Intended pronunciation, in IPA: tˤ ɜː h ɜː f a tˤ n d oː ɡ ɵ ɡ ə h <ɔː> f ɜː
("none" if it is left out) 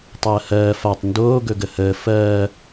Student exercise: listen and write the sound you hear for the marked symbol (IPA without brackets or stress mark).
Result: əː